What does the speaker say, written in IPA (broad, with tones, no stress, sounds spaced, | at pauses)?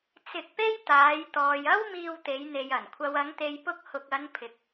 t͡s ɪ˧ k̚ p e˥ j t̪ aː˨˧ j t̪ ɔː˨ j ɐ˥ w m iː˧ w t̪ e˨˧ j n̪ e˨ j ɐ˨˩ n kʷʰ ɐ˨ w ɐ˨˧ ŋ t̪ e˨ j p ʊ˧ k̚ h ʊ˨ k̚ ɐ˨˧ n pʰ ɪ˨ k̚